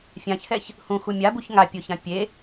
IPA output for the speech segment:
fʲ ã ç h ɛ ç | h ũ x u mʲ a b u ç ŋ a pʲ o ç ã pʲ e

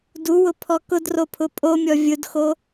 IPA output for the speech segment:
d u w ʊ pʰ ɔ k ʊ d r o pʰ ʊ pʼ o mʲ ɔ vʲ ʊ d x o

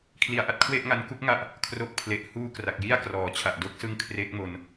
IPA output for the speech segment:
kʰ l i˩˦ a̯ ʔ a˨˩ t̚ kʰ w e˥˩ ʔ ŋ a˧ n k u˥˩ k̚ ŋ a˥˩ ʔ | kʰ r o˦˥ k̚ pʰ l e˨˩ ʔ h uː˥˩ k r a˨˩ k̚ j i˥˩ a̯ k r ɔː˩˦ t͡ɕʰ a˨˩ ʔ d o˦˥ k̚ s ɯ˧ ŋ kʰ r e˦˥ k̚ m o˧ n

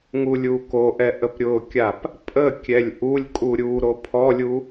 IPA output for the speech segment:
ŋ u lʲ u k o ʔ ɛ ʔ ə p ɾʲ ʊ kʲ a p | pʼ ə kʲ ɛ lʲ ʔ u lʲ kʼ u ɾʲ u ɾ o pʰ ɔ lʲ u

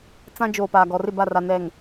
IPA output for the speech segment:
t͡s ã˦ d͡ʒ oː˨ p aː˨ ɡ ɔ˨ r ɪ˦˨ b a˦˨ r a˨ n ɛ˨ ŋ

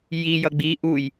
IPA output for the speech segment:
j i j ʌ ɡ͡b i ʔ u j

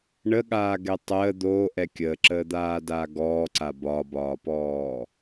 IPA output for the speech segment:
ɳ ə ɠ aː ɡ ɛ tˤ əː d̪ oː ʔ ɛ kʲ əː ǁ əː d̪ aː d aː ɡ ɔː ǀ a b ɒ b ɒː p ɔː

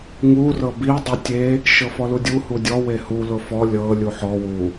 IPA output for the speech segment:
ŋ u r ɤ b i dˤ i tʲ e | ʃ ɤ f ɔ l u dʲ u h u dʲ ɔ w e h u l ʊ f ɔ lʲ ɤ lʲ u ħ ɔ w u

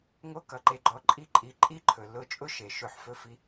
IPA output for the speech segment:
ŋ o˦ k ʌ˨ ǃ e˧ ɡ͡ǃ ɔ˧ ǃʼ i˧ ǃʼ i˨ ǃʼ i˦ ǃʰ ɵ˨ l ʊ˦˨ t͡ʃʼ ʊ˦ ʃ e˨ ʃ ɵ˦˨ ħ f ɵ˦ f i˦

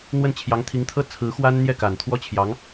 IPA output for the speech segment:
n̪ w ə˥˩ n t͡ɕʰ j ɑ˧˥ ŋ t̪ʰ i˧˥ ŋ t̪ʰ ɤ˥ t͡sʰ ɹ̩˧˥ x w a˥ n n̪ j ɛ˥˩ k a˨˩ n t̪ʰ w ɔ˥ t͡ɕʰ j ɑ˧˥ ŋ

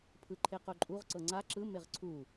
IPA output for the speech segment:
pʰ ɯ ǃʰ e q o ǃʼ u ʁ ǀ ɤ ŋ͡ǀ a ǁ ɯ m e ʁ ǀʰ u

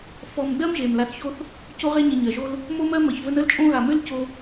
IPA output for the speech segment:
f ɔ˨ m d ɜ˥ m ʒ e˩ m l a˨ θ ç o˦ θ | c o˦ ʁ e˦ ɲ ə˨ ɲ ɜ˩ ʒ o˦ l | m o˦ m ɜ˦ m ə˩ ç v ə˦ n ə˥ l t͡ʃʼ õ˥ ɣ a˨ m ʏ˥ l c o˦

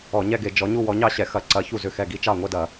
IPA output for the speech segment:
ɔ˧˩˧ ɲ ɛ˥˧ ɡ e˧˩˧ d͡ʒ ɔ˨˦ ɲ u˥˧ w ɔ˨˦ ɲ ɑ˥˧ ɕ ɛ˧˩˧ x ɐ˧˩˧ ǀ ɐ˨˦ ç u˥˩ z ʏ˥˩ x ɛ˥˩ ɡ i˥˧ t͡ʃ ɑ˥˩ ŋʷ ɛ˥˧ d ɐ˧˩˧

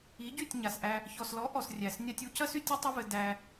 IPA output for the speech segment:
i˨˦ ɟ y˦˨ tʲ ɲ a˨ s ʔ æ˧ | ç ɔ˨ s l ɔ˨˦ ʔ ɔ˨ s rʲ æ˨ s nʲ a˧ tʲ u˧ c ɐ˦ s y˧ tʲ ɘ˦ tˤ ɐ˦ v ɘ˧ d æ˧

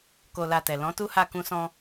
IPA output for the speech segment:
k o˧ l a˧ t ɛ˨ l ɔ̃˨˦ t u˦ h a˦˨ k ũ˧ s ɔ̃˧

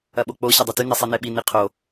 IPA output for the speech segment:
ɐ ɓ o k͡p o ɕ ɐ dˤ y t y n e sˤ i n e ɓ i n i qʰ o

